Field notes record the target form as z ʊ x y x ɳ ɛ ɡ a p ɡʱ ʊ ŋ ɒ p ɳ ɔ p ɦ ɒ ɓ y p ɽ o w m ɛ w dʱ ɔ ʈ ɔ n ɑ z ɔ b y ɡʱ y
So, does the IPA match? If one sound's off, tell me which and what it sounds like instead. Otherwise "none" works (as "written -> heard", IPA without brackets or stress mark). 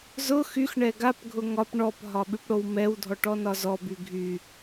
ɑ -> ɒ